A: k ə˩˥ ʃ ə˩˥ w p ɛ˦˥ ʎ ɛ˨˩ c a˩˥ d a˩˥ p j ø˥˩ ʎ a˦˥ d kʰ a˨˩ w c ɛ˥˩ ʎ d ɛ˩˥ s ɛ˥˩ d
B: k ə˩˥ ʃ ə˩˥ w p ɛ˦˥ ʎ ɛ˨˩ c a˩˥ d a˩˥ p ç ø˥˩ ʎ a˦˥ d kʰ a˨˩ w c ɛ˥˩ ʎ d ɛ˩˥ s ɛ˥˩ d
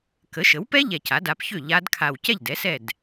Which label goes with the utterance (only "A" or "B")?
B